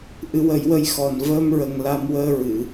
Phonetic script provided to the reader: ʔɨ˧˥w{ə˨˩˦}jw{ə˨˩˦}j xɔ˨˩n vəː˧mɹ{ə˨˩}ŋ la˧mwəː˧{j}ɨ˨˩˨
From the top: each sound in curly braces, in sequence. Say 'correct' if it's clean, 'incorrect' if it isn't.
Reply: correct, incorrect: ə˧, correct, incorrect: ɹ

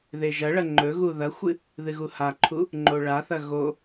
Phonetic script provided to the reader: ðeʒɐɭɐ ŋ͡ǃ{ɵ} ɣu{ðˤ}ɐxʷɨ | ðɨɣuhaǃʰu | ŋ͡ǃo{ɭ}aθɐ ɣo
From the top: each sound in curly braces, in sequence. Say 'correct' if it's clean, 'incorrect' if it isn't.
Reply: correct, incorrect: ð, correct

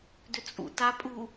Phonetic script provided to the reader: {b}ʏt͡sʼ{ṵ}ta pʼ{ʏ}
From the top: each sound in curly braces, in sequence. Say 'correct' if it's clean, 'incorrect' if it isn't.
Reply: incorrect: d, correct, incorrect: u

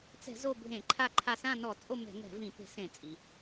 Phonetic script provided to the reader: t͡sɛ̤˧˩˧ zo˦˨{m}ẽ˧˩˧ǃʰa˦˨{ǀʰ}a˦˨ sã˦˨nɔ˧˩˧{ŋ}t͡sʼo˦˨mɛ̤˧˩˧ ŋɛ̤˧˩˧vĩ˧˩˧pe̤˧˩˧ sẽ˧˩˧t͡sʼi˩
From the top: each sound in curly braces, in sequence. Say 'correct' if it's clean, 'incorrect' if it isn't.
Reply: incorrect: bʱ, incorrect: ǃʰ, incorrect: none

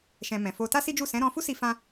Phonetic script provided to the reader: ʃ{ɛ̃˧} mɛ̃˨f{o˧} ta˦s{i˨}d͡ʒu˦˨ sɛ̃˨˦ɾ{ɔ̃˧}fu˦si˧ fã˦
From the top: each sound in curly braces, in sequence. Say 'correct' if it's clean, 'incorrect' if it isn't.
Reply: correct, correct, incorrect: i˦, correct

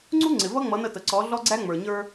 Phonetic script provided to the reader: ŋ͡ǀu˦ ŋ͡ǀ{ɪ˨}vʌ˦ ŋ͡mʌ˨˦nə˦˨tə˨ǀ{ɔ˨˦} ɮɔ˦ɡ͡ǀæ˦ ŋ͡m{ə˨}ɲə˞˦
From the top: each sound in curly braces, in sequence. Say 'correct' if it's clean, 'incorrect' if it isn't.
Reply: correct, correct, incorrect: ə˞˨

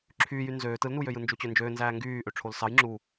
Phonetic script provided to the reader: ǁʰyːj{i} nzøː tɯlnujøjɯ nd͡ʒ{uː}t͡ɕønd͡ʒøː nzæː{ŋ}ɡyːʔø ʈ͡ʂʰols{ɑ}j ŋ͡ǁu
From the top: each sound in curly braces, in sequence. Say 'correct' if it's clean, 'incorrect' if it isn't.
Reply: incorrect: y, incorrect: u, correct, correct

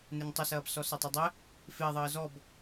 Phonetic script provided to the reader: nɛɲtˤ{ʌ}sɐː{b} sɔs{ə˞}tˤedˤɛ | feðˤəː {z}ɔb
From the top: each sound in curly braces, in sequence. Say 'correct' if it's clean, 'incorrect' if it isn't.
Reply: correct, correct, incorrect: ʌ, correct

